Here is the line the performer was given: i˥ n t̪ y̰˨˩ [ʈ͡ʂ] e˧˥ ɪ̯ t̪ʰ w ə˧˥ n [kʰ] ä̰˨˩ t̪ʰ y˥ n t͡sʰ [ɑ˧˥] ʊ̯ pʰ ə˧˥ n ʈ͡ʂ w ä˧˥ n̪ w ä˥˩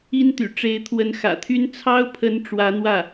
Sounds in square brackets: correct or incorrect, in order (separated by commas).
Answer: correct, incorrect, incorrect